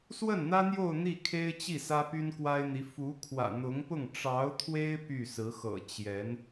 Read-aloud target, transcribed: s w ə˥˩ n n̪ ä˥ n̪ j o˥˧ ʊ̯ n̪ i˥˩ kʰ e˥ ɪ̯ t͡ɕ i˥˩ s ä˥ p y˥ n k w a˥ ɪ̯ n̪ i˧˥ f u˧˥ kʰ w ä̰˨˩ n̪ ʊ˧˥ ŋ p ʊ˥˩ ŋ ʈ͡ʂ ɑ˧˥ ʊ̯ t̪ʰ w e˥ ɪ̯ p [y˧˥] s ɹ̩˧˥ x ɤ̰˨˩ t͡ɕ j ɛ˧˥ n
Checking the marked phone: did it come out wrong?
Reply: yes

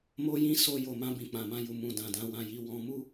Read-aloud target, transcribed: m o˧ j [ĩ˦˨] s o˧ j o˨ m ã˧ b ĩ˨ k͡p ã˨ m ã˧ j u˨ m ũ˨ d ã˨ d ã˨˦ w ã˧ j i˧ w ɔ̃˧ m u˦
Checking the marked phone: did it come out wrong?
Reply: yes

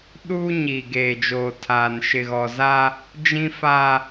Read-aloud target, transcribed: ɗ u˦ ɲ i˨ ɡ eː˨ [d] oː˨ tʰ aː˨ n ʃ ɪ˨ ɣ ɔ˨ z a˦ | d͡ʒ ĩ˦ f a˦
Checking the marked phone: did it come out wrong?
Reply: yes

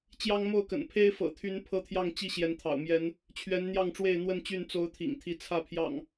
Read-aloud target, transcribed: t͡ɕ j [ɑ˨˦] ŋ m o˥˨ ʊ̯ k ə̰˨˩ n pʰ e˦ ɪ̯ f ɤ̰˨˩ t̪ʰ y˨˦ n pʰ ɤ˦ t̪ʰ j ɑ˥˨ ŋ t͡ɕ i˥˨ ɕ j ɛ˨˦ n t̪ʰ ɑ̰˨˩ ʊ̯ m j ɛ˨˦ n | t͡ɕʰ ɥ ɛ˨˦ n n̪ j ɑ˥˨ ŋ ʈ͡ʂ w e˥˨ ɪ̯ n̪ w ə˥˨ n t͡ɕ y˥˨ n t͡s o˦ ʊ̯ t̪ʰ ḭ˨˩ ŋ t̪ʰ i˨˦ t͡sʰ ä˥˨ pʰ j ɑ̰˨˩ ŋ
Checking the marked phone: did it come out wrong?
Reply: yes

